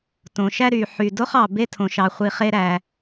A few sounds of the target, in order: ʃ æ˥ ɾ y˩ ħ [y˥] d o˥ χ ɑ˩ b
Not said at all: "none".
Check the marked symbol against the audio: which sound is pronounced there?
y˩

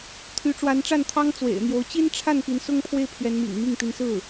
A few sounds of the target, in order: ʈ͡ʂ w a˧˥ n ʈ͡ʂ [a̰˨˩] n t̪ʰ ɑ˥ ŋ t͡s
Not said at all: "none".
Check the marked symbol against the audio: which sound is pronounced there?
a˥˩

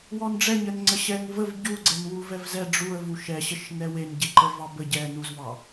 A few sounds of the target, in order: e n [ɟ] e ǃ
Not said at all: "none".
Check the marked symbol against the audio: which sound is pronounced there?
ɟ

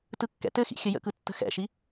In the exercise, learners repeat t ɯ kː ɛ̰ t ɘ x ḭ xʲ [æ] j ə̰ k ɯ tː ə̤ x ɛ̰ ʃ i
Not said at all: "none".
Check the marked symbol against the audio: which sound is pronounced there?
ə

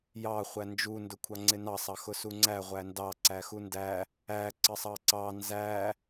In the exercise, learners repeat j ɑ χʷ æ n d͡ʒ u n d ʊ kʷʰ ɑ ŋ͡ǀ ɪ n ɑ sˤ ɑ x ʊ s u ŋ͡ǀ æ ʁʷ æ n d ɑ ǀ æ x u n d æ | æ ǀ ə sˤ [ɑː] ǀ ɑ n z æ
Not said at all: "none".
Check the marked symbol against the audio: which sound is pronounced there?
ɑ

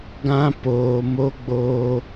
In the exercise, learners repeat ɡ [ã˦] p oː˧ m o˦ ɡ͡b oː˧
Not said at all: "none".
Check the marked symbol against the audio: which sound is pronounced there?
ã˦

